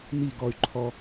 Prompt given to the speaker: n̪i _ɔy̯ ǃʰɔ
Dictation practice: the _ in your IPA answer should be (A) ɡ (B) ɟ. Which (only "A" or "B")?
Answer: A